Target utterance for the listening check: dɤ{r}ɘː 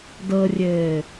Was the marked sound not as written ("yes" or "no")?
yes